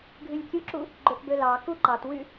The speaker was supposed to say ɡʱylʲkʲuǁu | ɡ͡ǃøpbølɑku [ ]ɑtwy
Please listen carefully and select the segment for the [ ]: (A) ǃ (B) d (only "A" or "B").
A